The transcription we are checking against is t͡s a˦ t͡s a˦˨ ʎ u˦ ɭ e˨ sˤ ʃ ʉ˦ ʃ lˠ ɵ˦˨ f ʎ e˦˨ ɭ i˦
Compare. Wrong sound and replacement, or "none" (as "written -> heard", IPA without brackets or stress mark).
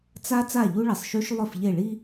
none